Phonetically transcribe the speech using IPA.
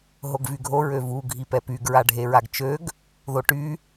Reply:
ɦoɡvyɡʱo ɹøvu ɡʱipɛpyɡ ɹaɖʱeɹaɡt͡ʃøɡ | ðoʈy

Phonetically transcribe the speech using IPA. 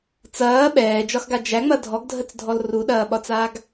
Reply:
t͡sɐː ɓɛːd͡ʒɒxɡa d͡ʒæŋ͡mɐ dʱɔɡdʱət͡sdʱɔl ruɗɐːɓɒt͡saːɡ

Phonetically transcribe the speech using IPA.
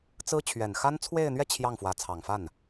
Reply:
t͡sɹ̩˥ t͡ɕʰɥɛ˨˩nxa˥n t͡sʰwe˥˧ɪ̯n̪ɥɛ˥˧ t͡ɕʰjɑ˥˩ŋfwä˧˥ t͡sʰɑ˨˩ŋfa˥˩n

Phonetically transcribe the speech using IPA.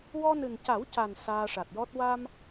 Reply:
wɔ˧nɨ˨˩nca˨˩˦wca˨˩n saː˧ʂa˨˩t̚jɔ˦˥t̚ wa˧m

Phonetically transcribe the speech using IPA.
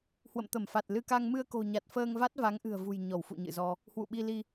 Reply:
hwə̰˧˨mt̪ə˧˩mfa˨˩t̚lɨ˧ ka˧ŋ mɨ˧ə̯ko̤˨˩ɲa˨˩t̚ fəː˧ŋ va˦˥t̚ va˨˦ŋʔɨ̤˨˩ə̯ vṳ˨˩j ɲɔ˧˩wfṵ˧˨ɲɨ̰˧˨zɔ˧ | hwṵ˧˨ɓi˧li˧

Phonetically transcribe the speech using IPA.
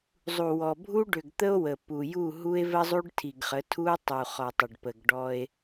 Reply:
zˤu˨wɔ˨ bʱu˦ ɖʏ˨ɡt̪ə˦o̯ wə˨pu˨ju˦˨ ɦu˦e̯və˦zˤu˦ɖ tʰi˨ɡχə˨˦ tʰu˦o̯tˤu˨ χɔ˨tˤə˨ɖ pə˨ɡ ɖɔ˦e̯

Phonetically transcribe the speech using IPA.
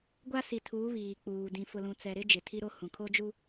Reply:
ɡʷa˦si˨tʰu˨˦ βiː˨k͡puː˨ dĩ˨fʊ˨lũ˨ t͡sɛ˨ɾɪ˦ d͡ʒɪ˨tʰi˦ɾo˦hũ˨ kʰo˦d͡ʒu˦

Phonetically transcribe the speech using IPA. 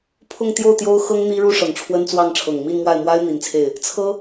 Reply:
pʰʊ˥˧ŋ t̪jo˥˩ʊ̯t̪jo˥ʊ̯xɤ˥ŋ n̪i˥ɻu˥ ʂɤ˨˩ŋʈ͡ʂʰwə˥nt͡swɑ˥˩ŋʈ͡ʂʰɤ˨˩ŋ mi˥˧nmwa˥˩ɪ̯ mwa˥ɪ̯ n̪i˧˥nt͡sʰe˥˩ɪ̯ | t͡sʰɤ˥

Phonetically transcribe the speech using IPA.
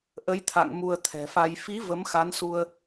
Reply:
ʔə˨˦jt̪ʰa̰˧˨ŋ mu˧ə̯t̪ʰɛ̤˨˩fa˧j fi˨˦ və˨˦mxa˨˦nsu˧ə̯

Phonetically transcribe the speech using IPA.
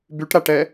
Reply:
byʈɾaʈɛ

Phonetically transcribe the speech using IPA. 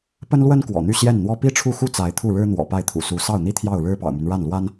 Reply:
pə˥nlwə˥n kwɔ̰˨˩n̪y˥˧ ɕjɛ˥˩nn̪wɔ˥ pi˥ʈ͡ʂʰu˥˩xu˥ t͡sa˧˥ɪ̯t̪ʰu˥˩ɻɻ̩˥ n̪wɔ̰˨˩pa˥˩ɪ̯t̪ʰṵ˨˩su˧˥ sɑ˥˩ʊ̯n̪i˥ t̪ʰjɑ˥˩ʊ̯ ɻɻ̩˥pɑ̰˨˩ʊ̯my˦n ɻa˥˩nlwa˥n

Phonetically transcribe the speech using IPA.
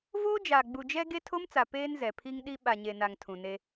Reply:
voː˦d͡ʒaː˨ ɡ͡bu˨d͡ʒɛ˦ ɡe˦tʰo˦mt͡sa˨ peː˦nzɛ˨pʰi˦ŋɗi˦ ɓa˨ɲe˨na˨ŋ tʰũ˨ne˦

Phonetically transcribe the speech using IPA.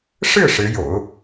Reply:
ʂɻ̩˥˩ ʂɻ̩˧˥jo̰˨˩˦ʊ̯

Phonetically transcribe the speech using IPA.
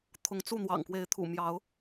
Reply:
t̪ʰʊ˨˦ŋt͡su˥˨ n̪wɑ̰˨˩ŋkwe˨˦ɪ̯t̪ʰṵ˨˩ mjɑ˨˦ʊ̯

